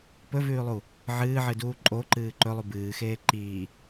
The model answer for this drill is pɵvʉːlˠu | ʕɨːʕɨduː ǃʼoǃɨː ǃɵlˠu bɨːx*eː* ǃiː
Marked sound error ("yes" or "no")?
no